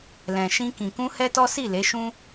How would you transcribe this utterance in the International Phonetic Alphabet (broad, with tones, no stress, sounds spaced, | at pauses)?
l ɛ̃˨ ʃ ĩ˧ k ĩ˨ k ũ˧ h ɛ˦ t ɔ˦ s i˦˨ l e˨˦ ʃ ũ˦